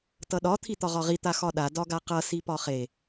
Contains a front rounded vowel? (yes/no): no